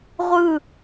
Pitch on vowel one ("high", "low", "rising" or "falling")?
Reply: falling